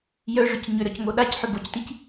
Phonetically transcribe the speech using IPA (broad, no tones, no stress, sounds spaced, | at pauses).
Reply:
j œ ʐ ʏ c ɲ ʏ ɾ œ c ŋ o ɗ a c ħ ʏ b o c t i c